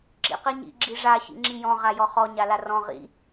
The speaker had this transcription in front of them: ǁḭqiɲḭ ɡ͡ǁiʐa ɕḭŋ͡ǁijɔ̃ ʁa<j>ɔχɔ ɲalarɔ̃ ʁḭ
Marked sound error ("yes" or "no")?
no